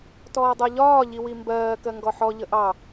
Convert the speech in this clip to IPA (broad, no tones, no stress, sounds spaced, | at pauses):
t ɔː dˤ ɜ ʎ ɒː ʎ i w i m b ɜː k ɜ ŋ ɡ ɔ ħ ɔ ʎ ə ʔ ɑ